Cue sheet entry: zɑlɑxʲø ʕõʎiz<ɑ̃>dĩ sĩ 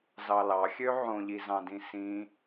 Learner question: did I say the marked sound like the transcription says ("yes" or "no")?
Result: yes